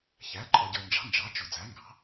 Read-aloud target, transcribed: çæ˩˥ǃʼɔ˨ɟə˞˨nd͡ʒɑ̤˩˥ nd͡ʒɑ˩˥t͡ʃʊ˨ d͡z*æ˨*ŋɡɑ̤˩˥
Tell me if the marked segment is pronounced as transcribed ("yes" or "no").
no